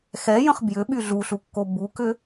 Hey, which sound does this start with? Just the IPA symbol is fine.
x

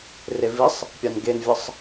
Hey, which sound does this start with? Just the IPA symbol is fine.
r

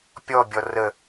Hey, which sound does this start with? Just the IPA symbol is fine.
pʲ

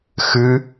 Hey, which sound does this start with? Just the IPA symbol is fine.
x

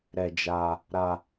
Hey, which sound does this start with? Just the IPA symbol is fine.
ɾ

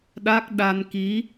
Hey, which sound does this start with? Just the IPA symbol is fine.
ɗ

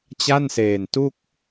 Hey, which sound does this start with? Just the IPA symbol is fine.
t͡ɕ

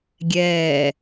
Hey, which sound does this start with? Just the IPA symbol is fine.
ɡʲ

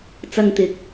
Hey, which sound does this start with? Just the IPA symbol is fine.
t͡s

